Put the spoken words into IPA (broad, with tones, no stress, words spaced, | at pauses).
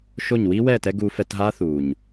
ʃo˦˨ɲ wiː˦wɛː˦˨tɛ˧ ɡuː˧fɛ˧tɦaː˦ θuː˨ɲ